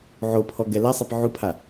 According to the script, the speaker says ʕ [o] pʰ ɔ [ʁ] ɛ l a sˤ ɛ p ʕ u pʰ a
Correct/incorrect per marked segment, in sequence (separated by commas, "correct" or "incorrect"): correct, incorrect